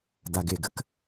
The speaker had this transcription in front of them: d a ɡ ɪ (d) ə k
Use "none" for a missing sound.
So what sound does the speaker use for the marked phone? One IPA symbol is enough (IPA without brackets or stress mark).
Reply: ɡ